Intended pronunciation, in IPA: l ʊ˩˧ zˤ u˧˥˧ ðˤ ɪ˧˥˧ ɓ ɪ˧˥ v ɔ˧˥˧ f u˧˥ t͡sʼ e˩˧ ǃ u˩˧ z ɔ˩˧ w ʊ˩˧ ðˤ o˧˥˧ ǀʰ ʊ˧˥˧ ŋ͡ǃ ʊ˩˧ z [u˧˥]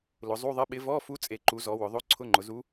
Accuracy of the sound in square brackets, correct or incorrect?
correct